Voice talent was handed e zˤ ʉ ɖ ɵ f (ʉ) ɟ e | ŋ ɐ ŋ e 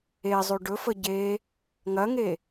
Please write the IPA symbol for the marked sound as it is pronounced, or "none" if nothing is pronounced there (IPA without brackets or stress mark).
ə